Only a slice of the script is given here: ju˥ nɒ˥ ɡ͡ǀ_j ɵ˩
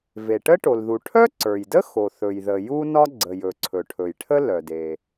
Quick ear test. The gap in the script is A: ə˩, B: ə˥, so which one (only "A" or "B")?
A